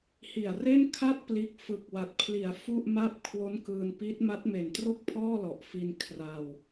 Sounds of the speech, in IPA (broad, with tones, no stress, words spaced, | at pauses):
hi˨˩a̯re˥˩nkʰa˥˩t̚ pliː˦˥k̚ fɯ˨˩k̚wa˨˩t̚pʰli˩˦a̯ fu˥˩ʔma˥˩p̚ kʰwo˦˥nkɯː˧npi˦˥t̚ ma˦˥t̚me˨˩ntro˥˩k̚ pʰɔː˥˩lɔ˨˩ʔfi˧n kʰra˧w